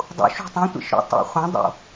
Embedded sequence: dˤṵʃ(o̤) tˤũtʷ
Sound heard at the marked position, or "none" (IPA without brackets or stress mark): o̤